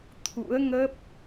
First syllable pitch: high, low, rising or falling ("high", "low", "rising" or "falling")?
rising